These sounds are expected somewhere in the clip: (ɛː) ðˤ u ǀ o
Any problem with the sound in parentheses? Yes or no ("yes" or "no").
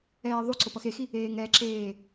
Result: no